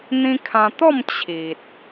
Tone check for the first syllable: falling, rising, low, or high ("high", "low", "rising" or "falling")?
high